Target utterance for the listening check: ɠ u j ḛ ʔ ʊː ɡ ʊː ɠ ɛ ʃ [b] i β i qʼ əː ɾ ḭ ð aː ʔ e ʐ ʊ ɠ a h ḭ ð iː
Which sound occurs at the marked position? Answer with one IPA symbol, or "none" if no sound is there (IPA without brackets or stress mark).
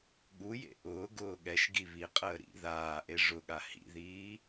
ɡ